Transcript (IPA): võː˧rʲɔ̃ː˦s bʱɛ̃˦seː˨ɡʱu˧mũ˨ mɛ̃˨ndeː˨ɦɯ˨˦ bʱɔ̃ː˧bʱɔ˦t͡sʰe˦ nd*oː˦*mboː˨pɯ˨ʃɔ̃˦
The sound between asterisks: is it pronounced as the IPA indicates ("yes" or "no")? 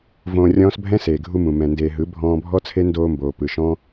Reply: no